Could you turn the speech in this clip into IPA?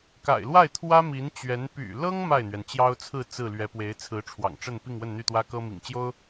k a̰˨˩ ɪ̯ l w a˥˩ ɪ̯ t̪ʰ w ä˥ m i˧˥ n t͡ɕ ɥ ɛ˧˥ n p y̰˨˩ l ɤ˥ ŋ m a˥˩ ɪ̯ n̪ ɥ ɛ˩ n t͡ɕ j ɑ˥ ʊ̯ t͡sʰ ɹ̩˥˧ t͡s ɹ̩˥˩ l ɥ ɛ˧˥ p w e˧˥ ɪ̯ t͡sʰ ɹ̩˧˥ ʈ͡ʂʰ w ɑ̰˨˩ ŋ ʈ͡ʂ ə˥˧ n p i˥˧ ŋ w ə˥˧ n n̪ y˥˩ t̪ w ä˥ k ɤ˥ m ḭ˨˩ ŋ t͡ɕ j o˥ ʊ̯

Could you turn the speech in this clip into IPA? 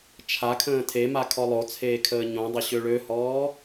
t͡ʃʰ a kʰ ə̃ː tʰ e m a kʰ ɔ lˠ o t͡sʰ eː kʰ əː ɲ õ dˤ ə ɕ ø ɭ ø h ɔː

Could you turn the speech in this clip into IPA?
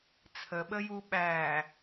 t͡sʰ ə ɓ ə j u ɓ æː

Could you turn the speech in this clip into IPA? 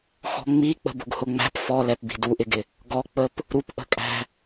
x ɔ̤ ŋ͡m i k͡p ə̤ b ʊ ɡ h ʊ ŋ͡m æ̤ p f ɔ l ɛ p b i̤ d u ʔ ɪ ɡ ɪ | ɡ ɔ k͡p ə p | ɾ u p ʔ ə̤ kʼ æ̤

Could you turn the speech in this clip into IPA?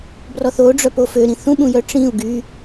b r ɔ θ o ɖ͡ʐ œ p o f ø ɾ ĩ θ ũ ɓ ũ j œ ʈ͡ʂ ĩ u̯ ɡ y

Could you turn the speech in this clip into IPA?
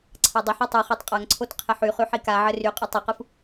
ǀʰ a dˤ ɪ ħ a tˤ ɯ χ a tˤ qʼ a ŋ ǀʰ o t qʰ ɪ ħ y χ y ħ i k a ʕ ɘ r y qʼ ɯ tˤ ɘ q ɯ f

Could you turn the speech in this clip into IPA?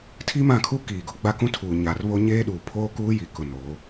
tʰ i˦ m ã˦˨ kʰ u˦ k iː˨ ɡ ʊ˦ ɡ͡b a˦ k ũ˦ tʰ uː˨ ɲ a˨ r β o˦ ɲ eː˦ ɗ uː˨ pʰ oː˦ k uː˦ j i˨˦ k ʊ˨ n oː˨˦

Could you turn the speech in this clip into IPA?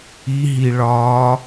i ɦ i ɭ ɒː

